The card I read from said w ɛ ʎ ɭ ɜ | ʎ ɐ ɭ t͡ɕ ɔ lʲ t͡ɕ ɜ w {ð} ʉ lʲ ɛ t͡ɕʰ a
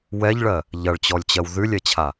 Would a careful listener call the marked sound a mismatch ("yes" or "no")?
no